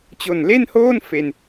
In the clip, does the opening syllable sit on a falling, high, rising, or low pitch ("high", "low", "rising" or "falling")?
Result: low